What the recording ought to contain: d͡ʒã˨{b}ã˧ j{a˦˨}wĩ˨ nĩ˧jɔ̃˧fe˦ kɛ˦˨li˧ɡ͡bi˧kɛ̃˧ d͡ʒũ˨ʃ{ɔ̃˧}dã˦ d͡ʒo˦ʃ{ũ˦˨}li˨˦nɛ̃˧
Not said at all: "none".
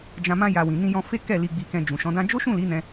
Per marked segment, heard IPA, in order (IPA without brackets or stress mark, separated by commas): m, a˧, ɔ̃˨˦, ũ˦˨